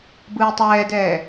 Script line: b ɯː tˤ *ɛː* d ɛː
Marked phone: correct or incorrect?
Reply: correct